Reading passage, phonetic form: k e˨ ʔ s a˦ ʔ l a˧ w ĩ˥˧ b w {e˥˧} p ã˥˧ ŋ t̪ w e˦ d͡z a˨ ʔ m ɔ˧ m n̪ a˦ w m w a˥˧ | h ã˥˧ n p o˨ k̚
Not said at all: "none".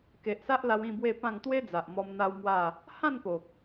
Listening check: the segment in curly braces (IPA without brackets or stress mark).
e˥˧